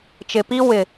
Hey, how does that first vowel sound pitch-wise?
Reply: low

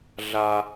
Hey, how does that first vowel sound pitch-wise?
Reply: low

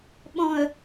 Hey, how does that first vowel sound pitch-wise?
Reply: low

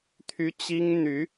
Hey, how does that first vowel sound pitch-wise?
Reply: high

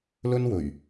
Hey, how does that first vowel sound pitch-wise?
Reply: high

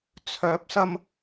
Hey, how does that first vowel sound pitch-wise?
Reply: rising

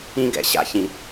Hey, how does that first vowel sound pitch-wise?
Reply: high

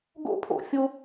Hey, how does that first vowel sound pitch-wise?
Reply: high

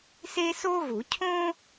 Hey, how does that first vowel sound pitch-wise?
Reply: high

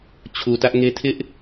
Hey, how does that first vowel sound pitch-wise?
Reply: low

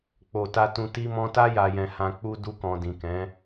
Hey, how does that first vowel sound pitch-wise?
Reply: low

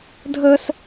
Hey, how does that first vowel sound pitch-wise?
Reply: high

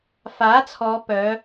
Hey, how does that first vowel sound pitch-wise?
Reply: rising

